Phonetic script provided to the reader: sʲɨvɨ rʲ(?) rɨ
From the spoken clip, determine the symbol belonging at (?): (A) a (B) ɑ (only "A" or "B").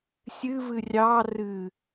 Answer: B